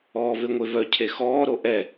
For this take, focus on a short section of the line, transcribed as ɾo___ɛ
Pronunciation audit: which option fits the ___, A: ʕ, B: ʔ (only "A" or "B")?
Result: B